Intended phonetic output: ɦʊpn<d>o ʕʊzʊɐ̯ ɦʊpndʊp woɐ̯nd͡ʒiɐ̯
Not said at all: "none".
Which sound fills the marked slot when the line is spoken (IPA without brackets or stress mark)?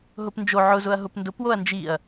d͡ʒ